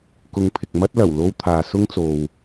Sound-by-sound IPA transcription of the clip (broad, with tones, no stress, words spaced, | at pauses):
kʊ˨˧ŋpʰɪ˨k̚ mɐ˥t̚lɐ˨˩w lo˧wt̪ʰaː˨ sʊ˥ŋt͡so˨w